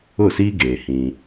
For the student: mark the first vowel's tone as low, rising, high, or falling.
falling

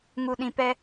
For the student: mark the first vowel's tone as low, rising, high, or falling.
low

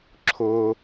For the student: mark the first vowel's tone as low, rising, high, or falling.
low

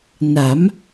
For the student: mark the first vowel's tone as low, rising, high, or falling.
rising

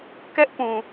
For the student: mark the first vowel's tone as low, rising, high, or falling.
high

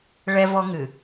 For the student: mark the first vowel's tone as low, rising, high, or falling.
high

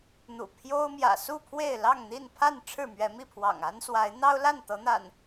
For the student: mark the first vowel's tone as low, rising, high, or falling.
low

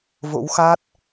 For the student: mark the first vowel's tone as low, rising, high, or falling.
rising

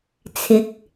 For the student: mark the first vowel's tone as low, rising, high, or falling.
rising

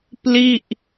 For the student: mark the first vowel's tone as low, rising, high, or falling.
falling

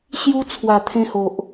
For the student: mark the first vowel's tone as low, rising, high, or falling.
high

